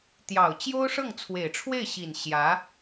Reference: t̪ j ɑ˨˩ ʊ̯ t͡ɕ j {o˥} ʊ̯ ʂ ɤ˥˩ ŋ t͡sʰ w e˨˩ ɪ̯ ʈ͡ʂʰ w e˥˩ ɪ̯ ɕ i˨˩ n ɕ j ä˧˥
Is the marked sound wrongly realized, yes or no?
no